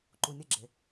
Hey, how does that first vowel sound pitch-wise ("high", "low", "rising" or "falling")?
low